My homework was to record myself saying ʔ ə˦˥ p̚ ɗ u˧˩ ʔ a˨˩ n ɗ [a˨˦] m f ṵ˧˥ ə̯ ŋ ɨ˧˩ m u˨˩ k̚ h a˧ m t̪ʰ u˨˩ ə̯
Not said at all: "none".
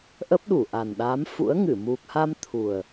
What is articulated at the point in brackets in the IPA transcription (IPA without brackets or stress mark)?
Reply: a˨˦